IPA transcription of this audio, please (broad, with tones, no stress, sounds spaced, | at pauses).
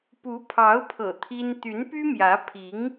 p u˧˥ pʰ ɑ˧˥ ʊ̯ pʰ ɤ̰˨˩ t̪ʰ i˥ n t̪ y˧˥ n p y˥ m j ä˧˥ pʰ i˧˥ ŋ